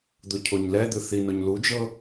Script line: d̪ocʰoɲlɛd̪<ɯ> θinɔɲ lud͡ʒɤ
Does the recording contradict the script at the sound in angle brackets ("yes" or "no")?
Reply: no